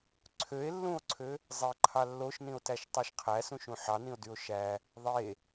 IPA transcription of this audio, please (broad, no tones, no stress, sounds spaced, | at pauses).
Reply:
ǀʰ ø e̯ lː ũ o̯ ǀʰ ø | zˤ e ǃʰ ɑ lː o ʃ n ĩ o̯ t æ ʃ tˤ æ ʃ qʰ æ s ũ ʃ ũ ħ ɑ n ĩ o̯ d y o̯ ʃ æ | ðˤ e